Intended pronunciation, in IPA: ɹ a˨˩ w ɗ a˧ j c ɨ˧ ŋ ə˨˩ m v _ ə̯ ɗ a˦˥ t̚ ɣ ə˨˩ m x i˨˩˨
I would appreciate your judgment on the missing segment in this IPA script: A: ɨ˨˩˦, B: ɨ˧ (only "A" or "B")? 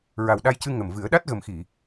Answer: A